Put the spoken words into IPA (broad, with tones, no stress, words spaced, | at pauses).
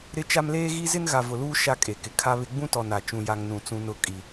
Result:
ɾɪ˦t͡ʃa˦m leː˦ɣi˦zɪ˦n ɣa˨vʊ˨luː˦ ʃa˦kʼe˨kɪ˨ kʰa˦βɪ˦ ɡ͡bũ˦tɔ˨ na˨ t͡ʃũ˦ja˦ŋ nũ˨t͡sũ˦ nʊ˦˨kʼi˨